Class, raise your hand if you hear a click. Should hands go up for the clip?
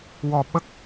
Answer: no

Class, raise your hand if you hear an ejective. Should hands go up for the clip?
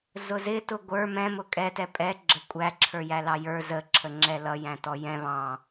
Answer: yes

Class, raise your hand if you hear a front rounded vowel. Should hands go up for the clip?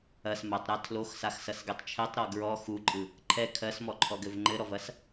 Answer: no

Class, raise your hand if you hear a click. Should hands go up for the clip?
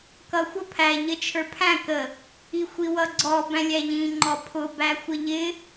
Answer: yes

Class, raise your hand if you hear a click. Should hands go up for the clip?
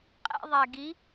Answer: no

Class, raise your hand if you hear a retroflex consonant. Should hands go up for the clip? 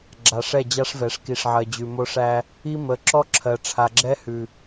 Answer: yes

